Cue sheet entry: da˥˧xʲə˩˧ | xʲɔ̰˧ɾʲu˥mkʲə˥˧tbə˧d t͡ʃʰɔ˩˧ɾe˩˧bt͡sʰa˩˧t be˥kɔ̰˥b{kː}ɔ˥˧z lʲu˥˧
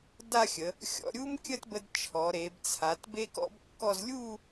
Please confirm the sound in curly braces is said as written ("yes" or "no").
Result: yes